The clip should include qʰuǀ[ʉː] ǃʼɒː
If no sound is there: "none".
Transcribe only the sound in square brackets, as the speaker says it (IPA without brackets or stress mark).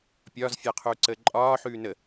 əː